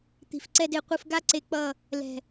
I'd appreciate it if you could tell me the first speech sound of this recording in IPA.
t̪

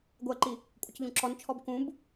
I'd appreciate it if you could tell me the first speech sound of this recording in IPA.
ɡʷ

